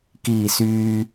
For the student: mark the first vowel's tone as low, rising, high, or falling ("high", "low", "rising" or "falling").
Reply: low